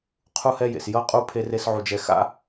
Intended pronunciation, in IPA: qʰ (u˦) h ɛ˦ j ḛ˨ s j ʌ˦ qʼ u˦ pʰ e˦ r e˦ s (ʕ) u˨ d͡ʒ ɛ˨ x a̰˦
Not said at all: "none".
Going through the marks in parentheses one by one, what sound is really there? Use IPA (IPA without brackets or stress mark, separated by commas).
u˦, ʕ